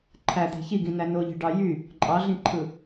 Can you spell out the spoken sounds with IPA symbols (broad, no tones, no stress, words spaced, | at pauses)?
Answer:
ǃʰæd̪e̤ çiɡĩnæ noʎe̤ɖɑ jy | ǃʼɑɮĩǃʰɯ